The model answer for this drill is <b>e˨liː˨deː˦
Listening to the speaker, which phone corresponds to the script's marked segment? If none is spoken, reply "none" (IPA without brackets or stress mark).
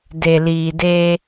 d